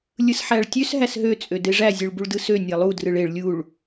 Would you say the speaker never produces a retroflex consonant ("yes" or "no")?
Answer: no